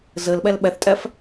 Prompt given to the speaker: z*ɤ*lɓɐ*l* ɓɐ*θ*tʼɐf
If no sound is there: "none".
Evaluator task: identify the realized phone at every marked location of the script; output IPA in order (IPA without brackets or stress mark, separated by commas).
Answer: ɤ, l, θ